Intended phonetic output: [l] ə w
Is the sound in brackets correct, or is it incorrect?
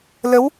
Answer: correct